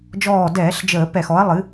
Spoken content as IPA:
d͡ʒ ɔː˧˩ d ɛː˧˩˧ ɬ d͡ʒ əː˧˩˧ p ɛ˧˩˧ x ɔ˩˥ ɐ̯ lˠ ɨ˩˥

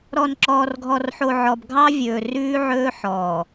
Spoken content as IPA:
ɾ ɔ˨ n ǁ ɔː˨ r ɡʱ ɔ˨ r ħ o˨ ʕ ɔ˨ b ɡʱ ɑ˦ vʲ ɵː˨ r ʉː˦ ʕ ɵː˦ ħ ɔː˨

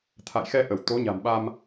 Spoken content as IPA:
t̪ʰ a̰˧˨ j x ɛ˧ ʔ ə˧˩ w t̪ o˨˦ ɲ a̤˨˩ m ɓ a˧ m

